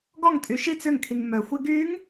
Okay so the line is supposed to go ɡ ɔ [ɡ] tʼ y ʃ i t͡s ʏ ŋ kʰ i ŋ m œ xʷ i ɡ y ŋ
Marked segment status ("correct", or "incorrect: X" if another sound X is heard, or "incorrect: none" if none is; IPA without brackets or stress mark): incorrect: ŋ